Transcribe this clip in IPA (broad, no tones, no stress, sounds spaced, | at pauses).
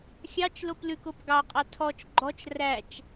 xʲ ɑ t͡ʃ l o p l ʉ k o p ɡ ɑ qʼ ɑ tʰ ɔ t͡ʃ ɡ͡ǃ ɔ t͡ʃ r æ t͡ʃ